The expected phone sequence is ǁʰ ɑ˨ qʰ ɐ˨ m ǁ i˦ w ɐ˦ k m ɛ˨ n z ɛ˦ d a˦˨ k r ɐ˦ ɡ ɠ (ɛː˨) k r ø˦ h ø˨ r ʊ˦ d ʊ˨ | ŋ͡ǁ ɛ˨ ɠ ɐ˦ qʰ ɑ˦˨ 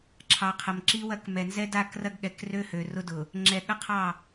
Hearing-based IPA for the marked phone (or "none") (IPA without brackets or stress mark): ɛ˨